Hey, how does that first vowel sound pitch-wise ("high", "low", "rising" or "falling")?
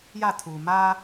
falling